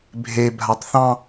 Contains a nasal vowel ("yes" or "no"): yes